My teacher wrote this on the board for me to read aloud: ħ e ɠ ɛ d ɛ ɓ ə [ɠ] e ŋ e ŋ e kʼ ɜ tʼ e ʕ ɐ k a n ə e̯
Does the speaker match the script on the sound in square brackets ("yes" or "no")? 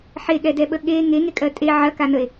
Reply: yes